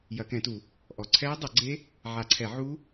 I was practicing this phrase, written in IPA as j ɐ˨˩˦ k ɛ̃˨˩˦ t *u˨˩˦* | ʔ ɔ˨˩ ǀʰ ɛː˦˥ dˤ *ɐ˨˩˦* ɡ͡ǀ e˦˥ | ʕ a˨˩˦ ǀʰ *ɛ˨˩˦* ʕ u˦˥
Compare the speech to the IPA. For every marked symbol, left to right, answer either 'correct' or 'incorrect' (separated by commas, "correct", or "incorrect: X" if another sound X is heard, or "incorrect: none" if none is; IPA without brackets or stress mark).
correct, correct, correct